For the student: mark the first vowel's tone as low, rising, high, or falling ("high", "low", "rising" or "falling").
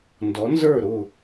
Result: rising